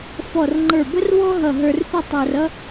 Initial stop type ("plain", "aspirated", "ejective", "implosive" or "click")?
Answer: click